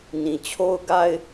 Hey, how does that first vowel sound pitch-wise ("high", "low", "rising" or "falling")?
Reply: low